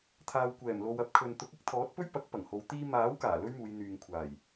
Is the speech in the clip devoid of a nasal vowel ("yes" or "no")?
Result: yes